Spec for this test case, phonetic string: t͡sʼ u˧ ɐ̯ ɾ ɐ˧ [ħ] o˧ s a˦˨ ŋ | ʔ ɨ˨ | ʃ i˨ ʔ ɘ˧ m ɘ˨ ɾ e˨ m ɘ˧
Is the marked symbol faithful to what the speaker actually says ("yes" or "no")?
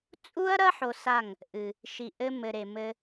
yes